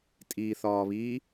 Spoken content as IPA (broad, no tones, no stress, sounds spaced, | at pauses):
tʼ iː θ ɒː β iː